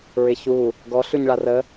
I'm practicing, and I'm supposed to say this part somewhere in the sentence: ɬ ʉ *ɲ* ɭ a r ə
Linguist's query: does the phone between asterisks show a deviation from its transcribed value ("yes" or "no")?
no